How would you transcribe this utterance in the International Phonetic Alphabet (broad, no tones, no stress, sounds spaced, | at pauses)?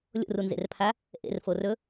lʲ o̰ r u n z ḛ r pʰ a | ʔ ḛ r f o r ɵ